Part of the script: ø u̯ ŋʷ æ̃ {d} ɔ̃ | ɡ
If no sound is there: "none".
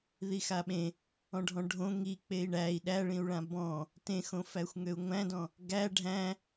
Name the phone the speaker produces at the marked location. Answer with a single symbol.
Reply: d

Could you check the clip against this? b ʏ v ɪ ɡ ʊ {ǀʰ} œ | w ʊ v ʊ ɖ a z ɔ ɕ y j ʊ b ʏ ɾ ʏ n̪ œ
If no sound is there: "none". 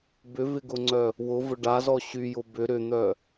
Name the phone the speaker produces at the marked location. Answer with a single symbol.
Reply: ŋ͡ǀ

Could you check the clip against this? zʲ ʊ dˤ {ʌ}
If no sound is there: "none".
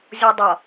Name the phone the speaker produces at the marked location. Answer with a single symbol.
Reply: ʌ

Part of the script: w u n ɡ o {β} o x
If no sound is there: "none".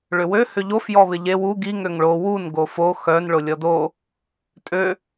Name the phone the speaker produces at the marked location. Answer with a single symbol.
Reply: f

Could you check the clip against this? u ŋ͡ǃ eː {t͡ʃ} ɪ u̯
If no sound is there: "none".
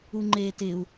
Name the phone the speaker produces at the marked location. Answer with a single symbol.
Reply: t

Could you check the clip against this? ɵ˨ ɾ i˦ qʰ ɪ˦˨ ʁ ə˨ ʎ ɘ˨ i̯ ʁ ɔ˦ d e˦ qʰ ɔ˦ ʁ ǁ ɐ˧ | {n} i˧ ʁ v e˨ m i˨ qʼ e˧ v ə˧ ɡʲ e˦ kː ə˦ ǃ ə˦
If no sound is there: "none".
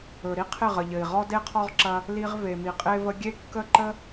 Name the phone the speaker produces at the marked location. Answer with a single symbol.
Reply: l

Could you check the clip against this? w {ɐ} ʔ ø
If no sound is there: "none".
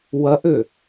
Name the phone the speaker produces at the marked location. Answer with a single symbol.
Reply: ɐ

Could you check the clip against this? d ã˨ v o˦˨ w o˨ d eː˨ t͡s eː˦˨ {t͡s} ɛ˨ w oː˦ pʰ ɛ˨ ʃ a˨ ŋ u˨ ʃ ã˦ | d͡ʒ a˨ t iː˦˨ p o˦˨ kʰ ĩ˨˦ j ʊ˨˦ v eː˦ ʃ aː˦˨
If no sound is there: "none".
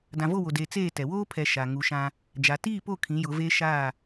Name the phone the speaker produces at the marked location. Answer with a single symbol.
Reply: t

